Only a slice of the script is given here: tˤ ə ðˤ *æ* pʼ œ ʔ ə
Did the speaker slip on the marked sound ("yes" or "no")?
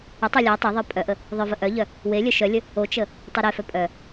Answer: yes